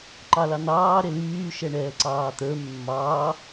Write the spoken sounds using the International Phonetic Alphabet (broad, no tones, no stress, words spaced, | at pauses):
ǃɑlɑn̪ɑː ɾelyː ʃɛɳɛːǀɑːt̪ə˞ mːɑː